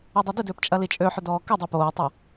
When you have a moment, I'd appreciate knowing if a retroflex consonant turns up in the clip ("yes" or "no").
no